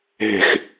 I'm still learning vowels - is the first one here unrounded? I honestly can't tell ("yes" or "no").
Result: yes